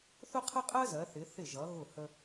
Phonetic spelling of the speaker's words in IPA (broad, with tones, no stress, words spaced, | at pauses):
θʊ˥qʰə˥qʼɜ˥ zɜ˩˧θɪ˩˧ θɪ˧˩ʒʌ˩˧ ɣʊ˧˩hə˧